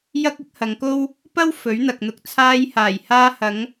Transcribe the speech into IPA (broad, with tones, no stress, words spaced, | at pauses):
jɐ˥k̚ɪ˥k̚hɐ˨˧ŋko˥w | pɐ˥w fɵ˨˥ɥn̪ɐ˨k̚n̪ʊ˧k̚ t͡sʰaː˧jhaː˨˩jhaː˧hɐ˨˧ŋ